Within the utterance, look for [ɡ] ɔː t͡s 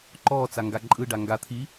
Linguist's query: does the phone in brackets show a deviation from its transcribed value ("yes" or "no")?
yes